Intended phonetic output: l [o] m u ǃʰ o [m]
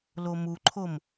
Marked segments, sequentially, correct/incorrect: correct, correct

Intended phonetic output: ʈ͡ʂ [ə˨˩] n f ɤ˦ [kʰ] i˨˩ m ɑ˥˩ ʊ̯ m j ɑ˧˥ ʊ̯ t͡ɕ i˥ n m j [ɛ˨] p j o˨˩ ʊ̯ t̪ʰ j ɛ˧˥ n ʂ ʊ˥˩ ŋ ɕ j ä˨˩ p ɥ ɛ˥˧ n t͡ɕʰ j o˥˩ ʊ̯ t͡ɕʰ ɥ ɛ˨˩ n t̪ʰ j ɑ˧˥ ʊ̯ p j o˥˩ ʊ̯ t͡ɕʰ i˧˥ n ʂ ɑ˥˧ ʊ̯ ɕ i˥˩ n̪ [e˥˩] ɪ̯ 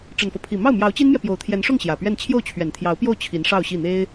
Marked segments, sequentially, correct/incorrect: correct, incorrect: pʰ, correct, incorrect: e˥

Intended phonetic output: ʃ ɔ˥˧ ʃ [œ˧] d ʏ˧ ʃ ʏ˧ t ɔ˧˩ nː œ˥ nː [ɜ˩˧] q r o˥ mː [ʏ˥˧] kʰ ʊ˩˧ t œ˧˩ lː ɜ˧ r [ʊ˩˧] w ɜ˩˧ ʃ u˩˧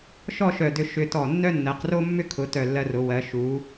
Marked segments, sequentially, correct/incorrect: incorrect: œ˧˩, correct, incorrect: ʏ˥, correct

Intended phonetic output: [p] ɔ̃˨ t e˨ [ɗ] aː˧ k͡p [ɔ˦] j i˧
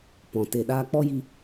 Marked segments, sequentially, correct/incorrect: correct, correct, correct

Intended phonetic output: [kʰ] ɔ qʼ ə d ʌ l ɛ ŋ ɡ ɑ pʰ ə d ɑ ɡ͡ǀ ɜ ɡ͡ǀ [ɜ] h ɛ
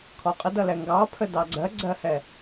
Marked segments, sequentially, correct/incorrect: correct, correct

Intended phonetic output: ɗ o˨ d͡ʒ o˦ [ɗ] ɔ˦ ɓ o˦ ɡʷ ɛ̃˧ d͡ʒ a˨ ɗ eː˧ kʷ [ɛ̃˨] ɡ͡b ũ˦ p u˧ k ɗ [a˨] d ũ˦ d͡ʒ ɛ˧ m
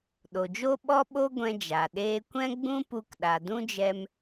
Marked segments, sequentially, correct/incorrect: incorrect: ɓ, incorrect: ɛ̃˦, correct

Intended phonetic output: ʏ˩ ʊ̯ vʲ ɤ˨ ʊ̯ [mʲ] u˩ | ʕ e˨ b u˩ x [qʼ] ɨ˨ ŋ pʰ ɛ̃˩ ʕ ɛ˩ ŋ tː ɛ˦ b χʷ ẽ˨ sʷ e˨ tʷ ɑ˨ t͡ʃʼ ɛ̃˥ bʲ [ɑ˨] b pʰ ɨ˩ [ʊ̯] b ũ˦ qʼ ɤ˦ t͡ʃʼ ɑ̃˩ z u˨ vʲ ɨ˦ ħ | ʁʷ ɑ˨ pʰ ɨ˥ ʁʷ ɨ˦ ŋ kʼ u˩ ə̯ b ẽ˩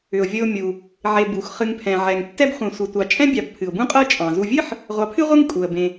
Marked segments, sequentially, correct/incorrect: correct, incorrect: χ, correct, correct

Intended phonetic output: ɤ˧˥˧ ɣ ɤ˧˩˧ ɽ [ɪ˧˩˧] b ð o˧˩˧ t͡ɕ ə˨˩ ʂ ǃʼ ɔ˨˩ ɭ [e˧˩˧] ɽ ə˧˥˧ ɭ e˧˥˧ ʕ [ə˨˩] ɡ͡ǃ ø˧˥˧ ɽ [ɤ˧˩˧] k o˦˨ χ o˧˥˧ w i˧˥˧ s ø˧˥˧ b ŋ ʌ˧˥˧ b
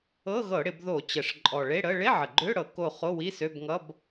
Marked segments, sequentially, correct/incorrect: correct, incorrect: e˧˥˧, correct, correct

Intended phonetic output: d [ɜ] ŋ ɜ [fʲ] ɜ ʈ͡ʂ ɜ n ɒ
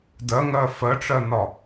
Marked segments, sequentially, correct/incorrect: correct, incorrect: f

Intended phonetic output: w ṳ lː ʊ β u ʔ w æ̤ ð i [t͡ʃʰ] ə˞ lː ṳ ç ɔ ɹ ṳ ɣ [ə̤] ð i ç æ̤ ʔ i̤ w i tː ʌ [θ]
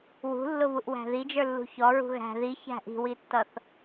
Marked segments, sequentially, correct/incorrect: incorrect: d͡ʒ, incorrect: æ̤, correct

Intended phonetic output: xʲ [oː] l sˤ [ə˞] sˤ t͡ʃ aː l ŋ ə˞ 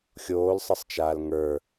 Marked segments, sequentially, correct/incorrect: correct, incorrect: ə

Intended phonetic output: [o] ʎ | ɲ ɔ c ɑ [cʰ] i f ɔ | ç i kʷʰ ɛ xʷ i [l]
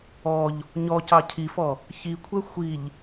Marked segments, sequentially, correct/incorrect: incorrect: ɔ, correct, incorrect: ʎ

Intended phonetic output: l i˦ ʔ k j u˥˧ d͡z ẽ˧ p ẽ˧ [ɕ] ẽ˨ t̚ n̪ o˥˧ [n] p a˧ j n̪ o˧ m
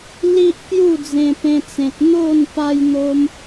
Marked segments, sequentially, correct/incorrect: incorrect: t͡s, correct

